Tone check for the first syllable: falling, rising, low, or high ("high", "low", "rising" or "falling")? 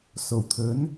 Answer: low